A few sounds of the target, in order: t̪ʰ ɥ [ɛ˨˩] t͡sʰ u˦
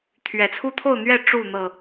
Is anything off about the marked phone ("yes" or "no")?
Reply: no